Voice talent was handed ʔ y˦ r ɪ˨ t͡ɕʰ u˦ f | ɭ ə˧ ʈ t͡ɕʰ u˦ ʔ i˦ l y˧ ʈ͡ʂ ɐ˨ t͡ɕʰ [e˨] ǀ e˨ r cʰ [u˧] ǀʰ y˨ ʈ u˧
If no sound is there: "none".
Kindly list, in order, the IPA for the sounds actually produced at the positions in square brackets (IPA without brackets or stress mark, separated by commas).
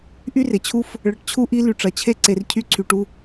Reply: e˦, y˧